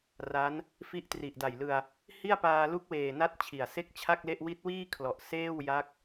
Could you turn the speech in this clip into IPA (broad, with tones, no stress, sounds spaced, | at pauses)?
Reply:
r a˦˥ n | f i˦˥ ʔ t r i˨˩ ʔ d a˨˩ j l ɯ˧ a̯ | h i˥˩ a̯ p aː˧ l u˦˥ k̚ w eː˨˩ n a˦˥ t̚ t͡ɕʰ i˨˩ a̯ s e˥˩ k̚ t͡ɕʰ a˥˩ k̚ l e˥˩ ʔ w i˦˥ t̚ w iː˥˩ kʰ l ɔ˨˩ ʔ s eː˥˩ w j a˦˥ k̚